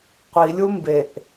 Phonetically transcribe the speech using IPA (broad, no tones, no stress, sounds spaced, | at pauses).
qʷ i lʲ u m b e ʔ